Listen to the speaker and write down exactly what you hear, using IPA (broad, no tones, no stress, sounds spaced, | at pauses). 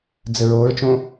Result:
d͡z ɘ ɹ o ɹ t͡ʃ õ